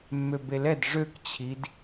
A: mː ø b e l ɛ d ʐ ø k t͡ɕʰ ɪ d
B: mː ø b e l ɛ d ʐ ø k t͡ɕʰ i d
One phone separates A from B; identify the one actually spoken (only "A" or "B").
B